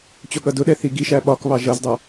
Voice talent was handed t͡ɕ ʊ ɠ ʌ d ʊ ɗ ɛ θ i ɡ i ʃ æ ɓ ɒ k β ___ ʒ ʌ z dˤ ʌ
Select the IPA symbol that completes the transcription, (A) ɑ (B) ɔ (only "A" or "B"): A